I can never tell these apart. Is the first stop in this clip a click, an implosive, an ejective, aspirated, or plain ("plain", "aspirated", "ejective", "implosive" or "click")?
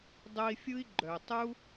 plain